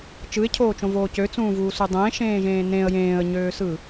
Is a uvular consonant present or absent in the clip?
absent